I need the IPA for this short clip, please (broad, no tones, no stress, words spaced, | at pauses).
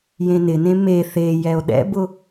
jẽnɪnẽ me θe jɛo̯ɗɛ̰bʊ